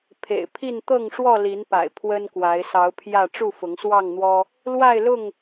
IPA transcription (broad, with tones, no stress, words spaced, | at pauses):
pʰḛ˨˩ɪ̯pʰi˥˨n t̪ɤ˥˨ŋʂwɔ˥˨li˨˦npa̰˨˩ɪ̯ pʰwə˦nkwa˨˦ɪ̯ sɑ˨˦ʊ̯pʰjä˥˨ ʈ͡ʂu˥˨fʊ˨˦ŋswɑ˥˨ŋn̪wɔ˦ | lwa˥˨ɪ̯lʊ˥˨ŋ